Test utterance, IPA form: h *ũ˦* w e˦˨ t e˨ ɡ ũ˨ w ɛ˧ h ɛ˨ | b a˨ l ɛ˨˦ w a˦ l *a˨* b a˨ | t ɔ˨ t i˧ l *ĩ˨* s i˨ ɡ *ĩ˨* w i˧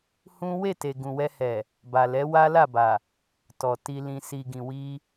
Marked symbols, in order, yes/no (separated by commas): yes, no, yes, yes